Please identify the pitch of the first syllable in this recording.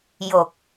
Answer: low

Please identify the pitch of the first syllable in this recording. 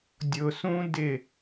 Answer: low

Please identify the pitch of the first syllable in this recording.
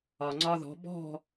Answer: low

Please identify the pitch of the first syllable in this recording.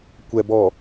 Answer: low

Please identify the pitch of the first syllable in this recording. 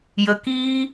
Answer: low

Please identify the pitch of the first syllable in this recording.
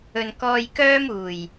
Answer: low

